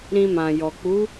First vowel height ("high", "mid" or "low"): high